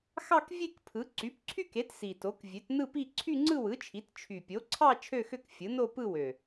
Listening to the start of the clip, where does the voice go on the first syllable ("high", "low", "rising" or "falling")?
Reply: falling